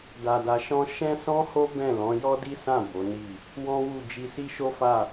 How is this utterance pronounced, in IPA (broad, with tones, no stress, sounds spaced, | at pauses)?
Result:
d a˧ d a˧ ʃ ɔ̃˦ ʃ ɛ̃˦ s ɔ̃˦ h o˦ b ɛ̃˦˨ l ɔ̃˨˦ j ɔ˦ d i˦ s ã˦˨ b o˨˦ n i˦˨ | w ɔ̃˦ w u˦˨ d͡ʒ i˧ s i˦ ʃ o˦ f a˦˨